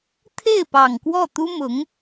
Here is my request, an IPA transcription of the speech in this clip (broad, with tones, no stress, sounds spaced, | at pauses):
t̪ʰ e˥˩ ɪ̯ p ɑ˨˩ ŋ k w ɔ˥˩ t̪ u˥ m ʊ˧˥ ŋ